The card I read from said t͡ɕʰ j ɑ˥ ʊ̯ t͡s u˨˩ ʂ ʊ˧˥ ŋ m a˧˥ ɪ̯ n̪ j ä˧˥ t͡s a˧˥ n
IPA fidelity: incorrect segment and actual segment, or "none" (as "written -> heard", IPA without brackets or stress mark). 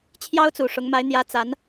none